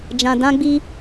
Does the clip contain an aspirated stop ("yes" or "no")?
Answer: no